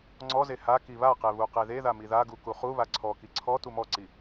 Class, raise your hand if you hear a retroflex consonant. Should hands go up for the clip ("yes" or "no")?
no